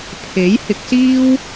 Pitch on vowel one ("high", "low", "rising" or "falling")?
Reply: rising